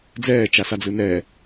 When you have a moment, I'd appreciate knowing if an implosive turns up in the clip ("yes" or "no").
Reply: no